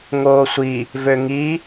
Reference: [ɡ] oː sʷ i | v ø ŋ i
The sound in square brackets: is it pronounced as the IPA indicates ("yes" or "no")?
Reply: no